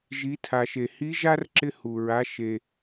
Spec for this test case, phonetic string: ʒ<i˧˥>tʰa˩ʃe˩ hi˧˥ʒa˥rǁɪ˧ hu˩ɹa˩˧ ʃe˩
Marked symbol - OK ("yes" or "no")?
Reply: no